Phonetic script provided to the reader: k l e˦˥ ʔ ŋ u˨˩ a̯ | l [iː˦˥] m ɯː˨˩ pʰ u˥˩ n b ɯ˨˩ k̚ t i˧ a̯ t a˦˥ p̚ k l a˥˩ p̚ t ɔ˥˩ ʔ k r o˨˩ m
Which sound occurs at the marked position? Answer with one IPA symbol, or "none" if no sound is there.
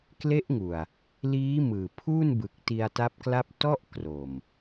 iː˦˥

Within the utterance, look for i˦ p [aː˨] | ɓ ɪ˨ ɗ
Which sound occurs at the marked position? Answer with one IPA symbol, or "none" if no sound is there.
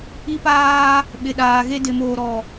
aː˦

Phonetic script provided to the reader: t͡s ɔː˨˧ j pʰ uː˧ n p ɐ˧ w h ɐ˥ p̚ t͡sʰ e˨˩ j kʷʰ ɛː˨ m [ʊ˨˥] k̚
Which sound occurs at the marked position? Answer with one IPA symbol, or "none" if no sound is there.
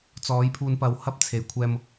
ʊ˨˥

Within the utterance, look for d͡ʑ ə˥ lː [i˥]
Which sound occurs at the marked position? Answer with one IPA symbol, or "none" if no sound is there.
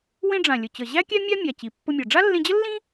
ĩ˥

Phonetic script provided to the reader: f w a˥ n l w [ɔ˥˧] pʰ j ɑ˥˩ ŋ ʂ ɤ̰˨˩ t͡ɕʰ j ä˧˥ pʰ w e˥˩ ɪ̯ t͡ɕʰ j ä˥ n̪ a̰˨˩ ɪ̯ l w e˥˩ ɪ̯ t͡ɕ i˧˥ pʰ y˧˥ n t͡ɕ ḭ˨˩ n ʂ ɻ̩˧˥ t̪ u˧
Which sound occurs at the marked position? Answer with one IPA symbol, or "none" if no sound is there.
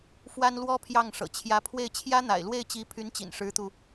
ɔ˥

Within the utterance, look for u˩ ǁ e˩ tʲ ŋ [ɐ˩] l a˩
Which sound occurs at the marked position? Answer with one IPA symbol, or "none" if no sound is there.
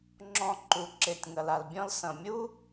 ɐ˩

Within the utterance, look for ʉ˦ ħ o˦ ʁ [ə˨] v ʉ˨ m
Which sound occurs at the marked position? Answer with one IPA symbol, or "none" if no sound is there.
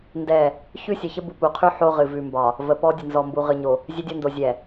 ɨ˨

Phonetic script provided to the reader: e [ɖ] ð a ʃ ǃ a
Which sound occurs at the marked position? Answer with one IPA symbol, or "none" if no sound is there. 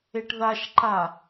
ʈ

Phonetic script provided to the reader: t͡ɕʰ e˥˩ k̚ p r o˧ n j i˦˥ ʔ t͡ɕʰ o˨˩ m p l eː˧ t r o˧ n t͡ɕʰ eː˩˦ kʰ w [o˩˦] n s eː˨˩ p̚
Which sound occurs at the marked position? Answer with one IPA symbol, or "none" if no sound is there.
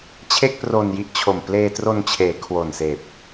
o˨˩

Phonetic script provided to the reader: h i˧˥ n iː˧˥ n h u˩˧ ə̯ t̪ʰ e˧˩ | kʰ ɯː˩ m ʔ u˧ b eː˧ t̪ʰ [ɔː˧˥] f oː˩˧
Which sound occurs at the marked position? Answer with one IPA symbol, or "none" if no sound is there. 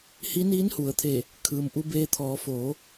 ɔː˩˧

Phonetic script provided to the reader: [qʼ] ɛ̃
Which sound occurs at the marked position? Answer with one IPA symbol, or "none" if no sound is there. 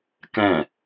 k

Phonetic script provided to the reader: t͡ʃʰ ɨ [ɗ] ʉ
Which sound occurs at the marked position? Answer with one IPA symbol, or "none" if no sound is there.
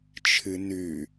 n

